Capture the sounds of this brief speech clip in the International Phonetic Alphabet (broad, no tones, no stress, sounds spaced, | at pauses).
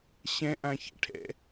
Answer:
ɕ ɛ̃ ʔ ã ç ɛ̰ ʈʰ ɛ̰